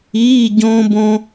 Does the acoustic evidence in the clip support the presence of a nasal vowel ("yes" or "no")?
yes